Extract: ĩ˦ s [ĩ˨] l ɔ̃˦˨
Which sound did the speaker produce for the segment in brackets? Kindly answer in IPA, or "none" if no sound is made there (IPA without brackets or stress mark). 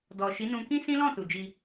ĩ˦